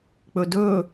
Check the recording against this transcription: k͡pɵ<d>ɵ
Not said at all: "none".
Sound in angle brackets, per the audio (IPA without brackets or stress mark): d